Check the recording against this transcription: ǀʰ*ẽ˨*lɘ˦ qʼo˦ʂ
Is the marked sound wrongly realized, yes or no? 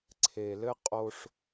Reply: yes